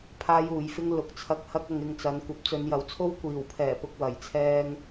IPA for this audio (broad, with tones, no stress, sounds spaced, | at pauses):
pʰ aː˥ j uː˨˧ j f ɪ˥ ŋ l ʊ˨˥ k̚ t͡sʰ ɐ˧ k̚ h ɐ˥ k̚ ɐ˧ ŋ ɪ˧ ŋ t͡s ɐ˨˧ n kʷ ɐ˨˥ p̚ t͡s ɵ˨˧ n j ɐ˨ w t͡sʰ o˥ w kʷ iː˨˩ w pʰ ɛː˨˩ p ʊ˨ k̚ w ɐ˨˩ j t͡sʰ ɛː˧ ŋ